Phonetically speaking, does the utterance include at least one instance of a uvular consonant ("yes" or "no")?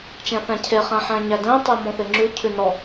yes